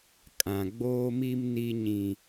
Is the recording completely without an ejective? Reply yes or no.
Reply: no